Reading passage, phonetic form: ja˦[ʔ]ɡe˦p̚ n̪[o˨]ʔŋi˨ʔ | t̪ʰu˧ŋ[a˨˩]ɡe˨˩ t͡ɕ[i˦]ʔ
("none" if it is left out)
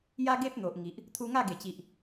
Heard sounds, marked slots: none, o˨, a˥˧, i˨

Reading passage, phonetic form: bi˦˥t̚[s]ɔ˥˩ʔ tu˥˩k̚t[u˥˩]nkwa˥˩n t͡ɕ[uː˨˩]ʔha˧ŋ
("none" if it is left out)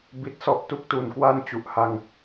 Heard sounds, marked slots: s, u˧, u˨˩

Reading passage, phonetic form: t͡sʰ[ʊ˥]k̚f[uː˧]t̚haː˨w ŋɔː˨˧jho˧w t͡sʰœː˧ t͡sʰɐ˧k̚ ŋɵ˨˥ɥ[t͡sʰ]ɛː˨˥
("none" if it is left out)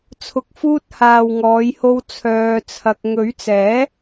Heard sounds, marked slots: ʊ˨˥, uː˧, t͡s

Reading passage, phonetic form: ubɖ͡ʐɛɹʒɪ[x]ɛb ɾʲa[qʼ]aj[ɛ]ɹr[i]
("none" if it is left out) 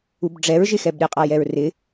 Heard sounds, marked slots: x, qʼ, ɛ, ɪ

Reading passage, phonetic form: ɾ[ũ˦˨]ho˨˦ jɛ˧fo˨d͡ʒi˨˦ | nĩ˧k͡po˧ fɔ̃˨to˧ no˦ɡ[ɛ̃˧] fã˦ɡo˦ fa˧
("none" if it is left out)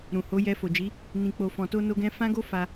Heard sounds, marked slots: ũ˨, ɛ̃˦

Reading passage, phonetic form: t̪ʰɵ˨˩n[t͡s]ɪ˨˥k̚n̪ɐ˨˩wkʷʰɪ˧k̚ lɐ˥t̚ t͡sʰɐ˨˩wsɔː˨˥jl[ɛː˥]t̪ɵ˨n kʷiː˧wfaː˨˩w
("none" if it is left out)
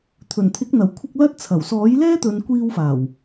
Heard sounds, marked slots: t̪ʰ, ɛː˥

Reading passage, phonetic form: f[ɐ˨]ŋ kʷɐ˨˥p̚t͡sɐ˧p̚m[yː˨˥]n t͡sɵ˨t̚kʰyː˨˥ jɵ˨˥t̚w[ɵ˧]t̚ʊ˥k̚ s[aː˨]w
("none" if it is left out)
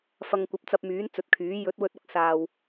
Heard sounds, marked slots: ɐ˨, yː˨˥, ɵ˧, aː˨

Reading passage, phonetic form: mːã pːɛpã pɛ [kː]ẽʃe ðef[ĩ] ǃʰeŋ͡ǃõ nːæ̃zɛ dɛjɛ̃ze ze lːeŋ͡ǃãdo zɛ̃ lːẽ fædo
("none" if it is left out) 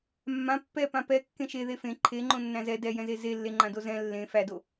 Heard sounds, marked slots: kː, ẽ

